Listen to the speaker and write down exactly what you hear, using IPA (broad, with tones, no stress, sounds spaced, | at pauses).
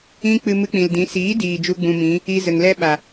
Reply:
ĩ˦ k͡p ɨ˧ m ɨ˧ k͡p ĩ˨ l d ĩ˨˦ s iː˨˦ d iː˨ d͡ʒ u˦ ɡ͡b ũ˧ m ĩ˨˦ | i˦ z ə˨ ŋ l ɛ˦ ɓ a˨